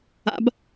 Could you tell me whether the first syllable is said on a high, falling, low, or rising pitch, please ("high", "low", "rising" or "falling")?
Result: rising